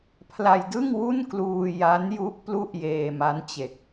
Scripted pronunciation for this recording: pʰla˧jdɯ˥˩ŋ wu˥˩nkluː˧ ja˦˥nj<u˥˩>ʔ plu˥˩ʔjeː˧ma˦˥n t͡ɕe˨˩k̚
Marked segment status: incorrect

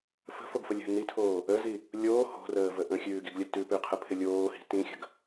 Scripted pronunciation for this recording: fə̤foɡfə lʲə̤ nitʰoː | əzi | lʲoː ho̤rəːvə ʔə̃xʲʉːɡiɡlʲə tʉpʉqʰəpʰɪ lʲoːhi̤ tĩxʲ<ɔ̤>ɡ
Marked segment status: incorrect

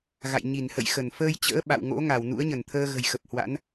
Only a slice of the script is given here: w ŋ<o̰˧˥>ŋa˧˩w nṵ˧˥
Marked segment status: correct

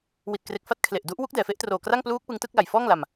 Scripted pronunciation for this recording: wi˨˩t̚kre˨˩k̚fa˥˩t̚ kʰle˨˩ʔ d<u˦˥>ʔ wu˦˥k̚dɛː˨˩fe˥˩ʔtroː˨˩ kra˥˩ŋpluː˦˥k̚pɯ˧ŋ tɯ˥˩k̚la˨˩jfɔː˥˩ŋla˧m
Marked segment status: correct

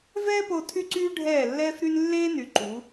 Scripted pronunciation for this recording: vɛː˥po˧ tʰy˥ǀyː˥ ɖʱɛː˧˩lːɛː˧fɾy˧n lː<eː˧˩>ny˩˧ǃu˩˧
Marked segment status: incorrect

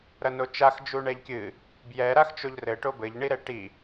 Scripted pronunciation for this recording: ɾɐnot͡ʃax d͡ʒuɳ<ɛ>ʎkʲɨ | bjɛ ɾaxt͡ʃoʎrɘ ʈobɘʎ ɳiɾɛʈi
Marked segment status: correct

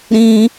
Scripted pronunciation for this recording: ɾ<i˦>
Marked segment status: incorrect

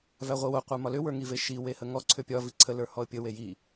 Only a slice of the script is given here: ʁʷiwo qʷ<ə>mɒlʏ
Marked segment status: incorrect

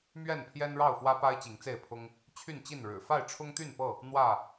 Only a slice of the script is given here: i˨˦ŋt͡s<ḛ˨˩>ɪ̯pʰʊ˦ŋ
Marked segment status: incorrect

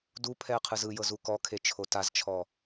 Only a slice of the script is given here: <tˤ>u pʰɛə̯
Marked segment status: incorrect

